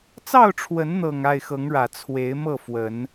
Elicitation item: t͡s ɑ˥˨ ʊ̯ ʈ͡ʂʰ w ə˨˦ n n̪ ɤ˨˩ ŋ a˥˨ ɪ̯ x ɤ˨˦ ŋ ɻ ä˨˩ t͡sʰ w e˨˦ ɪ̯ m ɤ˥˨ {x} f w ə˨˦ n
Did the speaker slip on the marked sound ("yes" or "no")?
yes